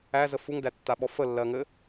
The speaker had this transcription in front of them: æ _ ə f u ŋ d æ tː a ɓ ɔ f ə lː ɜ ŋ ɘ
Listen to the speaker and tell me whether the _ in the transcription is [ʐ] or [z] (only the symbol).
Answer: z